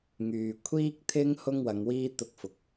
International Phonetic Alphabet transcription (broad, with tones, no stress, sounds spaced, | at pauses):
ŋ yː˨ kʷʰ iː˥ k̚ t̪ʰ ɪ˥ ŋ h ʊ˥ ŋ w ɐ˨˧ ŋ w iː˥ t̪ ʊ˥ k̚ f ʊ˧ k̚